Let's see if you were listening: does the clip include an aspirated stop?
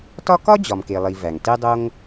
no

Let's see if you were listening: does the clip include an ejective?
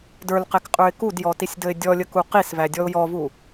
yes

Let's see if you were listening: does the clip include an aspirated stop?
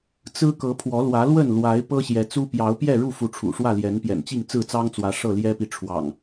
yes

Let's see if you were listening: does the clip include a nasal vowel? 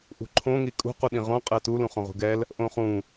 yes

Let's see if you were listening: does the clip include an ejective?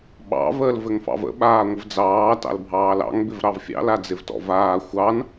no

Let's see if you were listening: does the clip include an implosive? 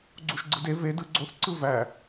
no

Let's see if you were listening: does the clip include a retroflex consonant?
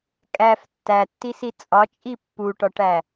yes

